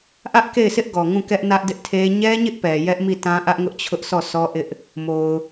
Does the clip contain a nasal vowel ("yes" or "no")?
yes